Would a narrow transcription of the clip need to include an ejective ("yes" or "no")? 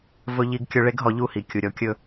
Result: no